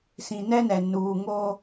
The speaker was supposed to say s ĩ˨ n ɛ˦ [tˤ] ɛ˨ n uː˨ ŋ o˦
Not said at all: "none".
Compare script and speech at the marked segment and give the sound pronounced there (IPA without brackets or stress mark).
n